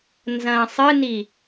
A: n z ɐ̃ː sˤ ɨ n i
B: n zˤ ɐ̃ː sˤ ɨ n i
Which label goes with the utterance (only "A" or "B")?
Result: A